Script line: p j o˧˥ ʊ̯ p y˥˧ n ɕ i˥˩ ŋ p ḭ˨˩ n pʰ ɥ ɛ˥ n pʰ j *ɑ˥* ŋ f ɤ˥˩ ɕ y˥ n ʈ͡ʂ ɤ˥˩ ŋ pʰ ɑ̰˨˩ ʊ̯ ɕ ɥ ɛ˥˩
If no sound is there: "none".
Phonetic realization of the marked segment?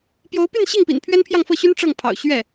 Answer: ɑ˥˧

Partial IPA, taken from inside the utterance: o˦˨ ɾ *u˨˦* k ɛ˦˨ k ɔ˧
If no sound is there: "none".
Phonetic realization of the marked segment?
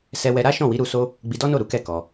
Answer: u˨˦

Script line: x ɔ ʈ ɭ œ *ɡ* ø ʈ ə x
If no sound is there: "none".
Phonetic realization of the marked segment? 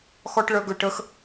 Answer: ɡ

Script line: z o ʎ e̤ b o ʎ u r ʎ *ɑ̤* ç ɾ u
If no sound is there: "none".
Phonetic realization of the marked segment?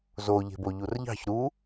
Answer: ɑ̤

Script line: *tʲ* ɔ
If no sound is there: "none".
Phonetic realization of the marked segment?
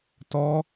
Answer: t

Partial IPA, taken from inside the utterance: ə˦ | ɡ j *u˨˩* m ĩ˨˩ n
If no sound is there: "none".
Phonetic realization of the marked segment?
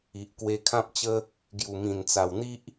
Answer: u˨˩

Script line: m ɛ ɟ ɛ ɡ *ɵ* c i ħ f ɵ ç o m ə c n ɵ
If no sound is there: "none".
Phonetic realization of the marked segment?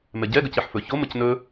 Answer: ə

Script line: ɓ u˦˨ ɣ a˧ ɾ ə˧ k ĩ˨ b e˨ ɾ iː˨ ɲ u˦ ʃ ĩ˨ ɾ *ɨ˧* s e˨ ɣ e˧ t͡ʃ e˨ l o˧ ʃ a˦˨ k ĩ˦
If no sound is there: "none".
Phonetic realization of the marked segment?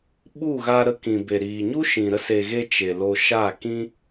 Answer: ə˧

